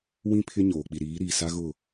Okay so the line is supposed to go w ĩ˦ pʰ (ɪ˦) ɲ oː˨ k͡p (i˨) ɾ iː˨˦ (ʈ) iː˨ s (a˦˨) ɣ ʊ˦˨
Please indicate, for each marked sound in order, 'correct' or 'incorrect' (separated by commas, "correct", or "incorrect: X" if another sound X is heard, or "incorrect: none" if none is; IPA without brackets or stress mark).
correct, correct, incorrect: ɾ, incorrect: a˦